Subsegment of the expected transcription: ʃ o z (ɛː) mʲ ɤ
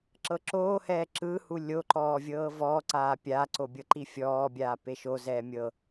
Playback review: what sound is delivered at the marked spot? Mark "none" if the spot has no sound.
ɛː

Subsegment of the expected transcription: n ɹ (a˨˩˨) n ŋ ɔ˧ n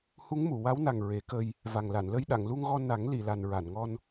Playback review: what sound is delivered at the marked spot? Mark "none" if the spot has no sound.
a˨˩˨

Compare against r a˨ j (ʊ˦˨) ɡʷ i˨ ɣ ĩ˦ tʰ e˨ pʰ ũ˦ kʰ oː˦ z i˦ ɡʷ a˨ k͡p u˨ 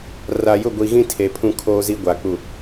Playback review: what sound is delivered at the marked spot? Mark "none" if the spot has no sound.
ʊ˦˨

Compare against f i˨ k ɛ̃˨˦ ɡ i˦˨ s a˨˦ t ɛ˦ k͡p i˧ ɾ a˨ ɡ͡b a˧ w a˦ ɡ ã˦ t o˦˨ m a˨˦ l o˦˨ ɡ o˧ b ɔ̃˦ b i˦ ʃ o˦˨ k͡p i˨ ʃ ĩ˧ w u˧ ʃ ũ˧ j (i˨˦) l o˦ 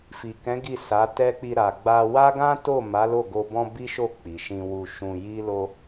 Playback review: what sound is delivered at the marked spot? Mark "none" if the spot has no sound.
i˦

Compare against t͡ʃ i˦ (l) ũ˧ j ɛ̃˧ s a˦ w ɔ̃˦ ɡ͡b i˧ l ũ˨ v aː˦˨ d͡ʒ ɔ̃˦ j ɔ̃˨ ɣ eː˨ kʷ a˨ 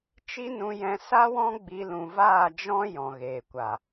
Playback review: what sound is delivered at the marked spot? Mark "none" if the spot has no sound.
n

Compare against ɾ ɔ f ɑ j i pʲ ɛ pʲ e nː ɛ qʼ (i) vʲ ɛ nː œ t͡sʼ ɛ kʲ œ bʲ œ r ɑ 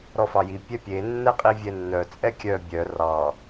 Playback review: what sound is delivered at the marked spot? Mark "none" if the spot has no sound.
i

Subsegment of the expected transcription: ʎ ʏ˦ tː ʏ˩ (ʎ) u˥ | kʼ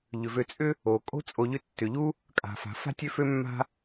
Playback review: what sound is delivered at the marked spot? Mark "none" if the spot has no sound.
ʎ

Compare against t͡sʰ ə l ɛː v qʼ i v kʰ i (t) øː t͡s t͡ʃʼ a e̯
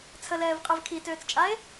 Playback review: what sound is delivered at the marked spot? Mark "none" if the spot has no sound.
t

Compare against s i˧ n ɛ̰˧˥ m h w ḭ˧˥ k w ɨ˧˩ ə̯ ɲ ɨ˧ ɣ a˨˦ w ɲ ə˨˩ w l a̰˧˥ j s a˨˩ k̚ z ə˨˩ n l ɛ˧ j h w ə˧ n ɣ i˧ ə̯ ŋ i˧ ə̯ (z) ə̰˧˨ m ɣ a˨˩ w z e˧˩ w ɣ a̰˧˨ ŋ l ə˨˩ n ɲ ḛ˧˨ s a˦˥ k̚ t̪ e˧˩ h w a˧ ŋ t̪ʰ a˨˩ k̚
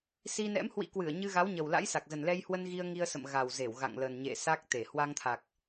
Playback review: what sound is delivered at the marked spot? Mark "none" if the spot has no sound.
s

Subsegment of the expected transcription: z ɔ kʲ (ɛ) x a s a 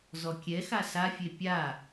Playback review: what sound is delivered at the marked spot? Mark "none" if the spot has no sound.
ɛ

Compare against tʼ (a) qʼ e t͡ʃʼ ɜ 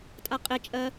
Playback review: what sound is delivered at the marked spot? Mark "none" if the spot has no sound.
a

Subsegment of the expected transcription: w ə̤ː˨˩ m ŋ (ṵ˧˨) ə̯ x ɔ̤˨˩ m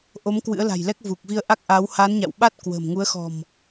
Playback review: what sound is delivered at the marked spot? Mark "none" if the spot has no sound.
u˨˦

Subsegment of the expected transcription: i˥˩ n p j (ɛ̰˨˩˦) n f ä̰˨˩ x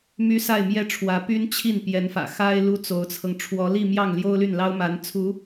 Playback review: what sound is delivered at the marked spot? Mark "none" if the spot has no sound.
ɛ˧˥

